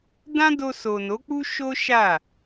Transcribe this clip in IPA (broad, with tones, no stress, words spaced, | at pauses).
dã˦do˧ so˨no˨˦ k͡pu˦ʃo˦ ʃa˦˨